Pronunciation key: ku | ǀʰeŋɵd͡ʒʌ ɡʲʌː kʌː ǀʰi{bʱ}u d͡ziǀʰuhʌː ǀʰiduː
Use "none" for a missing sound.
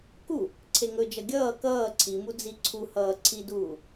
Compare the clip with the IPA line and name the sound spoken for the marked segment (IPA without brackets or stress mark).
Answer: m